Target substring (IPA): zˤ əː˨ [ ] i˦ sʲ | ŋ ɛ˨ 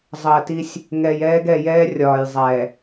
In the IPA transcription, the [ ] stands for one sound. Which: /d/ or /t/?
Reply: t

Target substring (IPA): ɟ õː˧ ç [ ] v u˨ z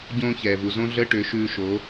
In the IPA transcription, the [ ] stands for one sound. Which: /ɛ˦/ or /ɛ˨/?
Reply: ɛ˨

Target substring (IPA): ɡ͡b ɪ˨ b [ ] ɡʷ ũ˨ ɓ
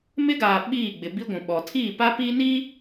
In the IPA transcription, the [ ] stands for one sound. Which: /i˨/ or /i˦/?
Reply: i˦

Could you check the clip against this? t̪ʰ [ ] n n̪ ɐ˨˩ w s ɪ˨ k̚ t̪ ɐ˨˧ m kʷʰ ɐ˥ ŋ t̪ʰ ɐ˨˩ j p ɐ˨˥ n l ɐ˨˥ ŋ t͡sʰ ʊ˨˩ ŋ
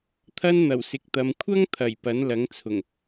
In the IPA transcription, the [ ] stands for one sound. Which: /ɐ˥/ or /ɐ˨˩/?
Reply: ɐ˥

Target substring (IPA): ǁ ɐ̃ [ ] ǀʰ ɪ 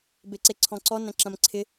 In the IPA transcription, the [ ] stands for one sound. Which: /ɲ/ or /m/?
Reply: m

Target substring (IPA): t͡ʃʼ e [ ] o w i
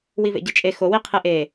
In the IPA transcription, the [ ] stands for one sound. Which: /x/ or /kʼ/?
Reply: x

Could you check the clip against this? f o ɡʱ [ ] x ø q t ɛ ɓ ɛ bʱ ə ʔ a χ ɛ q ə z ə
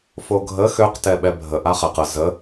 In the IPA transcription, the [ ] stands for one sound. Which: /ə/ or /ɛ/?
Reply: ə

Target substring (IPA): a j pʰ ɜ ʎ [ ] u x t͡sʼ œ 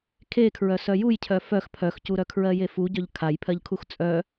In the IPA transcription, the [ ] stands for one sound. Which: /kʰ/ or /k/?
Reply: kʰ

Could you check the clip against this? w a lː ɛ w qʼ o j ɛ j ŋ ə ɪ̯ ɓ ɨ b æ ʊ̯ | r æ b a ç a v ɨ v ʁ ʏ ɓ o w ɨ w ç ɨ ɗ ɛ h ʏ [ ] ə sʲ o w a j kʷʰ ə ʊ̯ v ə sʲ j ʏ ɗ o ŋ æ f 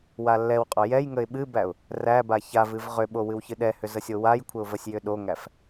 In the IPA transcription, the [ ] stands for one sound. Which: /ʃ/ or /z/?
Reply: z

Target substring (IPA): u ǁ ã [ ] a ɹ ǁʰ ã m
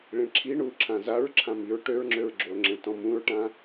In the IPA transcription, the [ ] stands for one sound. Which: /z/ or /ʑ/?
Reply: z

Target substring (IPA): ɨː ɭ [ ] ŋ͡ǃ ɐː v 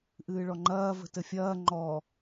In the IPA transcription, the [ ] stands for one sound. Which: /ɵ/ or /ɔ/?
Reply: ɔ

